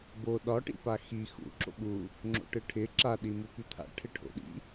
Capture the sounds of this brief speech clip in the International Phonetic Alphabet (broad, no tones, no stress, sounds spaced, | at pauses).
b o ɗ ɒ ʈ ḭ p a x i x ṵ ǁ o̰ ɓ u | ŋ͡ǁ o̰ ʈ ɯ ʈʰ ɪ ǁ a ɗ i m u p y t̪ʰ a̰ ʈʰ ɪ ʈʰ o̰ ɗ ḭ